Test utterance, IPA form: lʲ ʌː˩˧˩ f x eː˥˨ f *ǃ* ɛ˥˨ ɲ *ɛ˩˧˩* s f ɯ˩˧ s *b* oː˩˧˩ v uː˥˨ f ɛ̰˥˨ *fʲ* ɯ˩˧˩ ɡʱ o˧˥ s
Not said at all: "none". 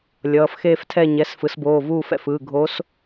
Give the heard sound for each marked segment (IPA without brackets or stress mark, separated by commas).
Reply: tʰ, ɛ˩˧˩, b, f